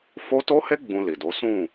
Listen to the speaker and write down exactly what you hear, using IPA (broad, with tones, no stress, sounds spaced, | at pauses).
f o˦ t o˦ h e˦ ɡ͡b ũ˧ l i˨ d o˨˦ s ũ˦˨